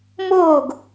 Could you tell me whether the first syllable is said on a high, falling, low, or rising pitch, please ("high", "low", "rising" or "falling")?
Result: falling